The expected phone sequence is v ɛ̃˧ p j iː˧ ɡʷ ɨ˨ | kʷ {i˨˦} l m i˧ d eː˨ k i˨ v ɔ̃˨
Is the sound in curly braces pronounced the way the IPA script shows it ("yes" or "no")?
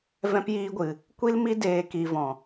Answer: no